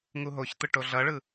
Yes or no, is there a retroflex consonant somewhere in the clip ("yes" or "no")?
yes